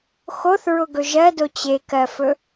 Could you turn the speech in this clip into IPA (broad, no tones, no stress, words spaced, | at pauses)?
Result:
xoθɹʊɡɵ ʒɜdo t͡ɕekɜfɵ